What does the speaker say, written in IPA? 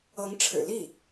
ɤ˧˥ ŋ ʈ͡ʂʰ ɻ̩˨˩ l i˥˩

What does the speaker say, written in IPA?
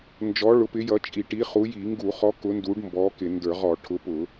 n d͡ʒ ɔ˨˥ ɭ ʊ˨˥ p ɪ˨˥ j ʌ˨˥ t͡ʃʼ i˧˩˧ ʈ i˨˥ χ u˨˥ j i˧˩˧ ŋ ɡ u˧˩˧ χ ɔ˨˥ k ʊ˨˥ n d u˨˥ ɖ m b ɔ˨˥ k ɪ˧˩˧ n d ə˞˧˩˧ ʁ ɔ˧˩˧ ʈʰ ʊ˨˥ p ʊ˧˩˧

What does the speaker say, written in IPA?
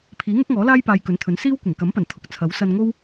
pʰ iː˨˥ ŋ ʊ˥ k̚ ŋ ɔː˨˥ l aː˥ j p aː˧ j k ɵ˨˥ n t̪ʰ ɵ˨˥ n s iː˥ w kʷ ɪ˨˩ ŋ k ɐ˨˥ m p ɐ˨˩ n t̪ʰ ʊ˨ k̚ t͡sʰ ɐ˨˥ w s ɐ˧ n ŋ o˥ w

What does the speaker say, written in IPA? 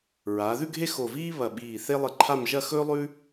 ɹ aː˩˧ ð ʉ˥˧ ɡʱ e˥˧ x o˧˩ v iː˥ β ɐ˧˩ ɓ iː˧˩ θ e˥ lˠ ɨ˧ ǃʰ a˥˧ m ʒ ɐ˥˧ x ɵː˥ lˠ ʉ˥

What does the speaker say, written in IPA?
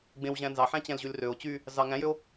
ɡ͡b ẽ w ʑ æ̃ n z ɑ ħ æ̃ t͡ɕ æ̃ l ʑ y l r ø o̯ t͡ɕ y | z ɑ ŋ æ̃ j ø o̯

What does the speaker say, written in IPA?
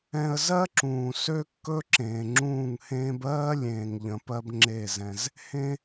ɛ̃˧ ə̯ z ɜ˦ ǁ ũː˨ s ø˦ kː ɵ˦ ǁ ẽː˨ ŋ͡ǁ ũː˦˨ ŋ h ẽː˦ b ɜː˦ lʲ ẽː˨ ŋ ʎ ə̃˨ p ɜ˧ b ŋ͡ǁ e˦˨ z ɛ̃˧ z | h ẽ˦

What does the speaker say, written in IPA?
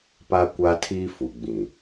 p a˦ kʷ a˦ tʰ iː˦ f u˨ ɡ͡b ĩ˨

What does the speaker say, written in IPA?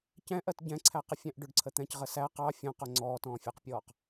c ɛ̃ ʔ ɜ t ɟ ɛ̃ ǀʰ æ q ə fʲ æ̃ ʔ ɖ ʊ ɖ ǀʰ ə t̪ ɛ̃ c ʁ ə s æ q ɑ fʲ ɔ̃ q ʊ ŋ͡ǀ ɔː t ɔ̃ː fʲ æ q pʲ ɔː q

